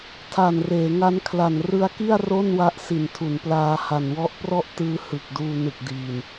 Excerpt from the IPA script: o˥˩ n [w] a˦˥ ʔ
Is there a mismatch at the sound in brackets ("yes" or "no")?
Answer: no